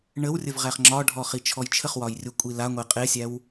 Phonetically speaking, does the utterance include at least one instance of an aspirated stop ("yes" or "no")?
yes